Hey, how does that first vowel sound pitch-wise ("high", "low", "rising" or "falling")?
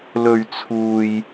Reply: low